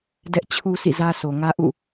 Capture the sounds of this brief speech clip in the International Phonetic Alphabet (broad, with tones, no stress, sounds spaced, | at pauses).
d ɛ˦ ʔ t͡ɕʰ u˦ sʰ ḭ˦˨ z ä˦ sʰ o˨ ŋ ä˦ ʔ ṵ˦˨